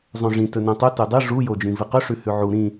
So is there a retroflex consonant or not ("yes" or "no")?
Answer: yes